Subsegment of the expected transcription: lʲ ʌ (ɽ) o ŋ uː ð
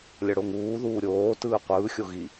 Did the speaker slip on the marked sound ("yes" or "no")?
no